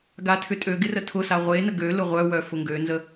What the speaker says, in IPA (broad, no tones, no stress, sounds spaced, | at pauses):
ɡ a tʰ ʏ tʼ ø ɡ ɪ r ə tʰ ʊ s a ʁʷ e n ə ɡ ø l ʊ ʁʷ œ w œ f ʊ ŋ ɡ ø n z ə